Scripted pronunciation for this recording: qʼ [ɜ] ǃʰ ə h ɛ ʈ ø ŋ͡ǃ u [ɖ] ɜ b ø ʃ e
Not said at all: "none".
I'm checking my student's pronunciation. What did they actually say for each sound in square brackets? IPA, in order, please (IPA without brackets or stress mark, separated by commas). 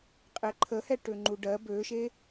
ɛ, ɖ